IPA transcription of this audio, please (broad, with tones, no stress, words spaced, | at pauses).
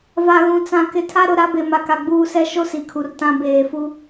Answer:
va˨ɣũ˨ t͡sã˨kɪ˨ tʰa˦ ɾʊ˨˦ ɾa˨˦be˨ma˨ka˨ ɡ͡buː˦sɛ˦ ʃo˦ si˨kʰu˨rtã˦ beː˨fu˦